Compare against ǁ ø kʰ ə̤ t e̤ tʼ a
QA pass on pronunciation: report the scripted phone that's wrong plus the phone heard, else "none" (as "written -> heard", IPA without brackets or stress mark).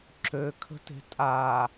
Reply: none